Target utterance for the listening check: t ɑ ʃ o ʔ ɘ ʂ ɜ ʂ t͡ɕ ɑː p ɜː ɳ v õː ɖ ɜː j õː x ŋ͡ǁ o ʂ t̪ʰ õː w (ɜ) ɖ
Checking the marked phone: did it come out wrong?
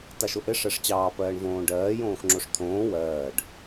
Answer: yes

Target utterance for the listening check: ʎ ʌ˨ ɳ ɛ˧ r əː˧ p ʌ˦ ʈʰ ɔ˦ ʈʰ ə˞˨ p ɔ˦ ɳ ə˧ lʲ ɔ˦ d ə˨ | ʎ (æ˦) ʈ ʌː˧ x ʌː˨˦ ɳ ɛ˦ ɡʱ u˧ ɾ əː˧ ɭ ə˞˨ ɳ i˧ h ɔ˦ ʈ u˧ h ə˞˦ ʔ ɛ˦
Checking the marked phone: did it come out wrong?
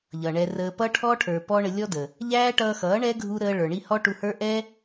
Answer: yes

